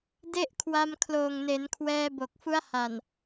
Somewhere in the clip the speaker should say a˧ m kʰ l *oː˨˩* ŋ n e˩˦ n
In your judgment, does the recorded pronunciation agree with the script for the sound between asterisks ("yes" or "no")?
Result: yes